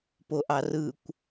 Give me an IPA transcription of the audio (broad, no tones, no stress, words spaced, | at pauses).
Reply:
poʔɑrɯkʷ